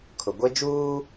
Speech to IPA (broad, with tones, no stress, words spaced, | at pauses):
kʰʊ˨ɡʷe˦d͡ʒuː˦